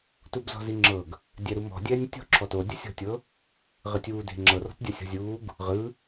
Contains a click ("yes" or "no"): yes